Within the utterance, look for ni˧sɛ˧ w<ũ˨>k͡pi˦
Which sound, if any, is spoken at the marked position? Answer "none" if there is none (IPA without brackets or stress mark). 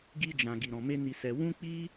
ũ˦